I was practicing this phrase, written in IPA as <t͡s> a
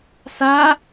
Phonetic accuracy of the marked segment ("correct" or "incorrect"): incorrect